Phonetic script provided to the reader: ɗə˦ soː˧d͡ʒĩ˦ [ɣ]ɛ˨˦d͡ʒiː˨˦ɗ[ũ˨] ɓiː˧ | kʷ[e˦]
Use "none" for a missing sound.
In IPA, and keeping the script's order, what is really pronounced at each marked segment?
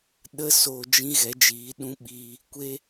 ɣ, ũ˦, e˦

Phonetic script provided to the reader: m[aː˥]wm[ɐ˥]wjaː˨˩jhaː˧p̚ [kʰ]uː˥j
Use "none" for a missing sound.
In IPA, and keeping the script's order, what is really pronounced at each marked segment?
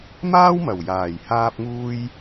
aː˥, ɐ˨˩, ŋ

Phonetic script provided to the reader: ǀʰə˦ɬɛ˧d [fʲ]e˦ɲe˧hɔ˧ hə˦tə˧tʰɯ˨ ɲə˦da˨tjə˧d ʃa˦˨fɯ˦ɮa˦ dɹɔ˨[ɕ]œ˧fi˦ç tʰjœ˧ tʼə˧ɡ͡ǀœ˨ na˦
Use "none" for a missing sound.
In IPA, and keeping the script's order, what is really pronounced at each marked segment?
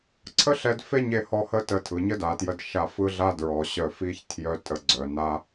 f, ɕ

